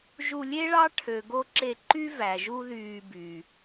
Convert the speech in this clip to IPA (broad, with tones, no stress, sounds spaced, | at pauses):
ʒ u˧ lʲ e˦ ɭ ɑ˦ ʈʰ ø˨ ɡ o˧ ǁ e˧ ǃ y˦ v æ˨ ʒ u˦ ð yː˧ b y˨